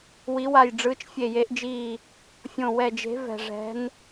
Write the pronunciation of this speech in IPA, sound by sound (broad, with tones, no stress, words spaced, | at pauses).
wi˨˦wa˧˩j ɖ͡ʐɯː˨˦t͡ʃfʲe˧˩je˨˦ʔd͡ʒiː˧˩ | fʲõ˧˩wɛ˧˩d͡ʒe̤˨˦ vɛ̤˧˩ʐɛ̤˨˦n